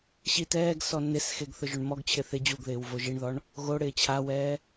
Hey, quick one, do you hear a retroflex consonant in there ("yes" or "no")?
yes